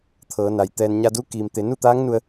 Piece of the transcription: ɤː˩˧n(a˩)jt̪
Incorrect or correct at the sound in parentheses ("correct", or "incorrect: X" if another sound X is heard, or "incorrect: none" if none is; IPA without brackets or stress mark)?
correct